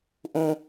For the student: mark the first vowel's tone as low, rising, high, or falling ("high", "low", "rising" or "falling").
low